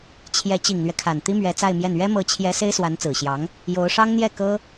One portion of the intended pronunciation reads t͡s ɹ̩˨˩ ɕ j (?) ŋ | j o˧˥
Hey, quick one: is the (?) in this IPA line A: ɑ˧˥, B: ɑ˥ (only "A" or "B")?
A